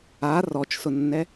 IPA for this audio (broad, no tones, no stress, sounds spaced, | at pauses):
a r ɔ t͡ʃ s ʊ nː ɛ